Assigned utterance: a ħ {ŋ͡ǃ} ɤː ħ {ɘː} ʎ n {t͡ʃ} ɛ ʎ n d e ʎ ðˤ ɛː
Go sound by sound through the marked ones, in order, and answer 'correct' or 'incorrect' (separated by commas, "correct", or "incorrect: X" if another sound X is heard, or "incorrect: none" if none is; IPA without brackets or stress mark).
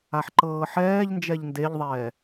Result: incorrect: ǃ, incorrect: ɛː, incorrect: d͡ʒ